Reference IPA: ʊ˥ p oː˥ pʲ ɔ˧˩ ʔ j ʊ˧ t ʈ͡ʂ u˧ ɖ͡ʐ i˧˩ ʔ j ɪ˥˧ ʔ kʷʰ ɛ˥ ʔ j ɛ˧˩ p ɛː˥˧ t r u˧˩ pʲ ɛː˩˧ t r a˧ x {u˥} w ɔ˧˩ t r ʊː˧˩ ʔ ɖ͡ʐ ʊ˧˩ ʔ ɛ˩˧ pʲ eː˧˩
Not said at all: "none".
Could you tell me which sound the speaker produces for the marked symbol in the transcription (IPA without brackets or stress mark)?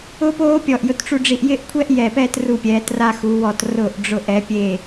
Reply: u˩˧